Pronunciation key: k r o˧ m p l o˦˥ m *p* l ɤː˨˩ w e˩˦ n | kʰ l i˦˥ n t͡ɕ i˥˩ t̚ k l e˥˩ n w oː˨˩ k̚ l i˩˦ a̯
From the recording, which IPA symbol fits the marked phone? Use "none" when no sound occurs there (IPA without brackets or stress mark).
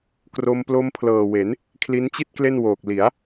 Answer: pʰ